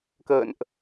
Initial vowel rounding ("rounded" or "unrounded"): unrounded